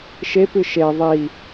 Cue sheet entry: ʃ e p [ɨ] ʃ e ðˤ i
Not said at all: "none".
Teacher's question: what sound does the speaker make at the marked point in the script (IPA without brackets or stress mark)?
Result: ɨ